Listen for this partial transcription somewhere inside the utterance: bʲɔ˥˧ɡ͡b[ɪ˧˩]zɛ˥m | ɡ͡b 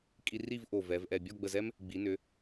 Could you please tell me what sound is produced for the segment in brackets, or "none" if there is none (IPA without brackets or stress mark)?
ə˧˩